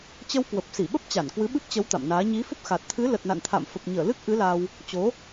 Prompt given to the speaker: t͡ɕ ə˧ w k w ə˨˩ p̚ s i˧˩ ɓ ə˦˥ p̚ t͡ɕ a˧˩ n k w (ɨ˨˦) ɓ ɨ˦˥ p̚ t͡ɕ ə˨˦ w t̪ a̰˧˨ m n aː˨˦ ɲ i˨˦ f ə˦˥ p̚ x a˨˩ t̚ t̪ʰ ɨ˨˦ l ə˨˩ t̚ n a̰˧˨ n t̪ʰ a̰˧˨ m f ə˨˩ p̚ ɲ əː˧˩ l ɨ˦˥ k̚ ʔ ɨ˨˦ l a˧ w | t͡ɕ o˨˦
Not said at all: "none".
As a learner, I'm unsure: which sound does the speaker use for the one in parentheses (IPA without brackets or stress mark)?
ɨ˨˦